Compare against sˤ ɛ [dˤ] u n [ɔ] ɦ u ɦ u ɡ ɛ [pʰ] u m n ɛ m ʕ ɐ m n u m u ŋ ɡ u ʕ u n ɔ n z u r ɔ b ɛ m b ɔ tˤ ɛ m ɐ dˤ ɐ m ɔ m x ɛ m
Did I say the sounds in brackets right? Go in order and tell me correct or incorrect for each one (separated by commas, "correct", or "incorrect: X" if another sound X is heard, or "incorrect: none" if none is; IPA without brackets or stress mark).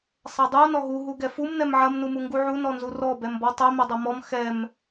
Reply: correct, correct, incorrect: f